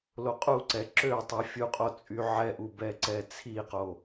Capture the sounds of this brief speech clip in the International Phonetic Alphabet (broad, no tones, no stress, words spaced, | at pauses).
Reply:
loqʼuǀɛ ǁøtˤi fʲuqʼot͡sʼy ʕɛʔubɛǀɛ t͡sʰiqo